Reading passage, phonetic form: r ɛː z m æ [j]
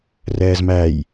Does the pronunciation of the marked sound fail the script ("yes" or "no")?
no